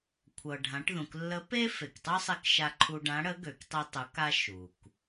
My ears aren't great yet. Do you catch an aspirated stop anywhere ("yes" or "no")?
yes